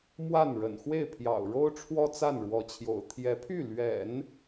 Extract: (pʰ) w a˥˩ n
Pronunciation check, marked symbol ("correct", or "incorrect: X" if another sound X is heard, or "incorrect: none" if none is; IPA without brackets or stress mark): incorrect: m